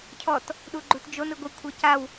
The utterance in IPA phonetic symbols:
cʰɔt | ɗuɡ͡ǃutd͡ʒon ɯɡʷɯ kʷʰɤcaw

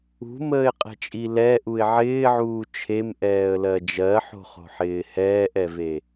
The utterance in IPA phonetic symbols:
ṳməːɪ̯qʼɛ̤t͡ʃʼi lɛʔuɪ̯ ʕɪːʕuː t͡ʃʰemʔɛːə̯lɜ d͡ʒɜħo̤χo̤ħɪː hɛːʔɛve

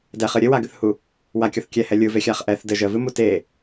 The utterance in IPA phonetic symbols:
dɛχɨ ɾʲɘwaɡɨθhu | wakʲɔθ kʲɛhɛ lʲɯvexʲaχ ʔɛθ dɘ ʒəvɨmu te

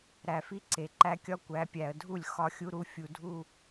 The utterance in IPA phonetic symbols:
ɾæ˨fi˦ǀe˨ǃæ˦ kʲɒ˦kʷæ˨˦pʲæ˨ə̯ dʱu˦˨lʲ xɒ˦xʲu˦ɾu˦ fʲu˨dʱu˦˨

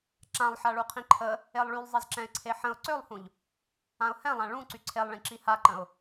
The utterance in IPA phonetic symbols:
ǁãlˠħaɭuqʰĩ ǃʰə | elˠɭylˠzˤiz ǁɛ̃ɪ̯ǀʰeħə̃ʊ̯ ǀølˠhũʎ | ãʊ̯hɛ̃lˠã ɭũ ǀyǀʰelˠɭĩ ǁihaǃə̃ʊ̯

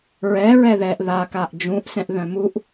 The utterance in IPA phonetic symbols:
ɹɛ ɹɛðɛʔ ðakaʔ d͡ʒũʔsɛ̃ʔðœ̃ muʔ

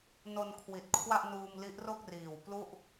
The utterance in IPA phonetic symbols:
no˧nkʰwi˨˩t̚ kʰwa˥˩ʔnuː˧m li˦˥ʔro˥˩k̚ riː˨˩wplu˥˩ʔ

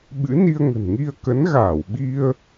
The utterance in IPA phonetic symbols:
ɓɨ̰˧˥ni˧ə̯ ŋə̤˨˩nŋi˧ə̯ kə˨˦nɣaː˧˩w ɓi˧ə̯

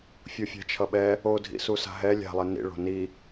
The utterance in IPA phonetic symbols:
fʲofʲa̤t͡ʃʰʌɓɛ | odʱḭsusa̤ ɦɛ lʲa̤lˠe nḭɭo̤ ni

